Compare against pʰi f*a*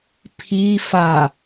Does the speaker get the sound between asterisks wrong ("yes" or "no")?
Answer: no